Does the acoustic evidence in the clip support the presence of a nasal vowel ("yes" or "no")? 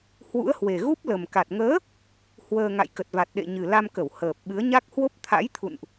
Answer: no